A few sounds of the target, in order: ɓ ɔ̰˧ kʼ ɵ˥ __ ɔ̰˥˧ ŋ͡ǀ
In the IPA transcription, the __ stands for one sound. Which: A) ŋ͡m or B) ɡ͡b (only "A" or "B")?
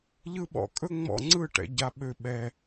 A